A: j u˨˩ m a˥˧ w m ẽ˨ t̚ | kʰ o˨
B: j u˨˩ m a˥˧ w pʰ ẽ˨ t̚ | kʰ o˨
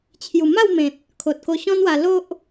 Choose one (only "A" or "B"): A